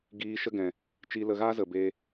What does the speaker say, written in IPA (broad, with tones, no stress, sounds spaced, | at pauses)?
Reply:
ɡ iː˧ ʃ ə˦ ɡ ɛ̃˨ | t͡ʃ i˧ l ə˧ ɣ aː˦ z ə˨ b eː˧